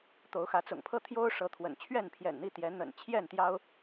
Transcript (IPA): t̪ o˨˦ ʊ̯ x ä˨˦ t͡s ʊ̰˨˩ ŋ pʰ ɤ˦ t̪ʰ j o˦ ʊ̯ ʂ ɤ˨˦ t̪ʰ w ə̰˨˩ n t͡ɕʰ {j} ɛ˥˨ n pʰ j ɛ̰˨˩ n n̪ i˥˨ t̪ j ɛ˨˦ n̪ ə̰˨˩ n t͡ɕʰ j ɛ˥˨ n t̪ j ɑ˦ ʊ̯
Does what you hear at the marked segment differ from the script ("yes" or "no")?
yes